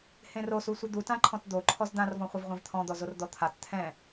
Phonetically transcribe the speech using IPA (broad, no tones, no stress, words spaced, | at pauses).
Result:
hẽrosusʷɨ d̪utãǃʰɔ̃t d̪o ǃʰɔzd̪ãrvɔ̃χʷɨv ʁʷẽvt̪ʰɔ̃d̪ɔzor d̪ɔt̪ʰat t̪ʰɛ̃